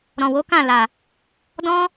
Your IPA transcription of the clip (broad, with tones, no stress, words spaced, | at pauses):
ɾɔ̃˨wo˨˦kã˦˨la˨ | dɔ̃˦